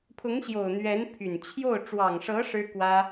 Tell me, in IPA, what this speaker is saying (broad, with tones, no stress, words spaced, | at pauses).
pʰʊ˧˥ŋɕjo˨˩ʊ̯ n̪ɥɛ˧˥npʰy˨˩n t͡ɕʰjo˥˩ʊ̯ ʈ͡ʂwɑ˨˩ŋʂɤ˧˥ ʂɻ̩˥kwä˥